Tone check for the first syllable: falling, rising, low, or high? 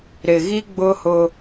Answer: low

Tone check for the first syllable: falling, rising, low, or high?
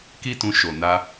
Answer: high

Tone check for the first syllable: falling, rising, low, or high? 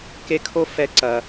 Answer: high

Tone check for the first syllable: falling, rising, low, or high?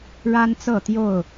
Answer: high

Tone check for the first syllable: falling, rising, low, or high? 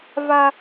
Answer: high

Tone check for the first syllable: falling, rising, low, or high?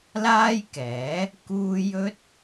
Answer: high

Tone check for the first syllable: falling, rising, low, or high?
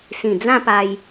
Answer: low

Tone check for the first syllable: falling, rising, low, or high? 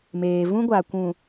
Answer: low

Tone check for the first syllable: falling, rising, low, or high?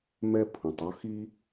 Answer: high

